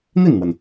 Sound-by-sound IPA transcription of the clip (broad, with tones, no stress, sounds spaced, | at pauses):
n̪ i˥˩ n n̪ w ə˩ n